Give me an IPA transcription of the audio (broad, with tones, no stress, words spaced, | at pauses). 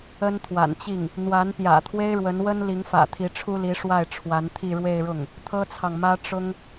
ə˥nt̪ʰwa̰˨˩nt͡ɕi˥˩ŋ | n̪wa˧˥n pjä̰˨˩t̪ʰwe˥ɪ̯ɻwə˧˥nwə˥n li˧˥ŋfä̰˨˩t̪ʰi˧˥ ʈ͡ʂʰu˥li˧˥ʂwa˥˩ɪ̯ ʈ͡ʂʰwa˧˥nt̪ʰi˥˧ɻwe˥˧ɪ̯ɻʊ˥˩ŋ | t̪ʰɤ˥t͡sʰɑ˨ŋmä˥ ʈ͡ʂʊ˥ŋ